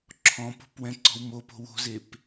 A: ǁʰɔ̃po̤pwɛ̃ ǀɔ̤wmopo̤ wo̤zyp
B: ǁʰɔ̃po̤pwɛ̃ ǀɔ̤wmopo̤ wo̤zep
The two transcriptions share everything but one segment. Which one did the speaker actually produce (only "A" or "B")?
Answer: B